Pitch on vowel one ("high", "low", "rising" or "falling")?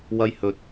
high